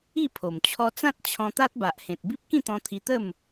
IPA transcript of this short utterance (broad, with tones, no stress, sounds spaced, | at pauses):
i˥˧ pʰ o˨˩ m t͡ɕʰ ɔ˧ t͡s ã˦ t̚ t͡ɕʰ ɔ̃˧ t̪ a˦ t̚ b a˨ ʔ h ẽ˨ t̚ b i˦ p̚ k ĩ˥˧ t̪ ɔ̃˧ t̪ʰ i˧ t̪ ə˥˧ m